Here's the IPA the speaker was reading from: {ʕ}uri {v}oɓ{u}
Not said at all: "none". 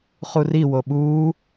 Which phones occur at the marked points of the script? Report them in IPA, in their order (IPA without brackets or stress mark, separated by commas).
χ, w, uː